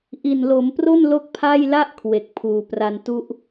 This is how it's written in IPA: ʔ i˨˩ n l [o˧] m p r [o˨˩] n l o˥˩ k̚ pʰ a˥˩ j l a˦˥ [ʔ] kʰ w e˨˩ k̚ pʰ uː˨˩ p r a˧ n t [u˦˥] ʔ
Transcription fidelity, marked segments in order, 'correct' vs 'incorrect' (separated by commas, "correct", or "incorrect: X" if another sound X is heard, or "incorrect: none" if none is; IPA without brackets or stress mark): incorrect: o˩˦, incorrect: o˥˩, correct, correct